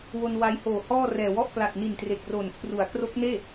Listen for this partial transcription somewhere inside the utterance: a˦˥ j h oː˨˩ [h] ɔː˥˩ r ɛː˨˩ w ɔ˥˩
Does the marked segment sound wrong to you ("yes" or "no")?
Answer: no